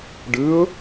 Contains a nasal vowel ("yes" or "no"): no